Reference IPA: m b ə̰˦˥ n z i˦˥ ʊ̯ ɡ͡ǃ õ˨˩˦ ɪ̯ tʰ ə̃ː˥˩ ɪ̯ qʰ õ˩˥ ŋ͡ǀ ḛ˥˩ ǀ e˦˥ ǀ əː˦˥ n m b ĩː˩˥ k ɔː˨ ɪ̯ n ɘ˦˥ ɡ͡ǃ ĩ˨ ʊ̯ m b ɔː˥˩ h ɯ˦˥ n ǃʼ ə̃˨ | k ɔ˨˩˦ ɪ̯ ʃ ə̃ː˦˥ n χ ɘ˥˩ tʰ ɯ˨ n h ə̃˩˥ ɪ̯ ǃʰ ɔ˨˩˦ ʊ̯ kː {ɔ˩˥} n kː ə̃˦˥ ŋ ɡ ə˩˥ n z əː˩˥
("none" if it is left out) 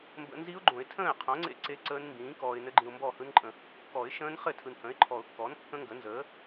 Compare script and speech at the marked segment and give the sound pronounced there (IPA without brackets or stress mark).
ɔ˩˥